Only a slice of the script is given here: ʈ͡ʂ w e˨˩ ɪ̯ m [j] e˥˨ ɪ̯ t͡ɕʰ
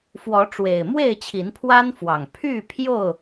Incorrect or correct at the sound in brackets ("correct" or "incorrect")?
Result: incorrect